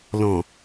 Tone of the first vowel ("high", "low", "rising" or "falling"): low